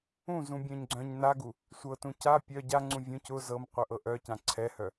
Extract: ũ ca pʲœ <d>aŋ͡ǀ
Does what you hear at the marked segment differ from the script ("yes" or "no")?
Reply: yes